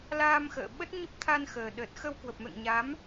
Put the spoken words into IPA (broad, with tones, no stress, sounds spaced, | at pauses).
l aː˧ m x ə̰ː˧˨ ɓ ə˦˥ t̚ ɲ ə˦˥ p̚ t̪ʰ a˧ n x əː˨˩ ɗ ə˨˩ t̚ x ə˧ w k w ə˨˩ p̚ m ɛ̰˧˨ ŋ ɲ a˨˦ m